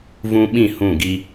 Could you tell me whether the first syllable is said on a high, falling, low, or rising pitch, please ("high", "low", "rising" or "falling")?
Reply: high